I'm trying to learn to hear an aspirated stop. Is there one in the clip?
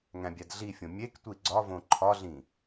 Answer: yes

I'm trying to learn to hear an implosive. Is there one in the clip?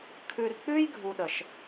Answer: yes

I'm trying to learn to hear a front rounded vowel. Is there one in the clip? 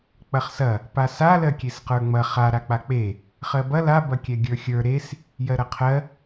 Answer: no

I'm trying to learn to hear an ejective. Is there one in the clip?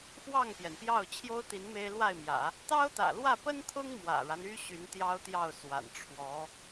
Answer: no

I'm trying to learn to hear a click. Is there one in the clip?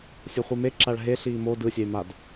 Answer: yes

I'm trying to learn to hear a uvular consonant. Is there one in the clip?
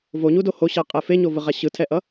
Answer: yes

